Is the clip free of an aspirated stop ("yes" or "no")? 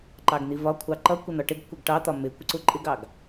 no